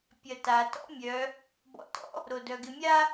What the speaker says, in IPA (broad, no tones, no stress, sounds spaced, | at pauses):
pʲ ɐ t a t ɔ̰ mʲ œ | b ɔ̰ t ɔ̰ | ɾ o d œ ɡ ɪ mʲ a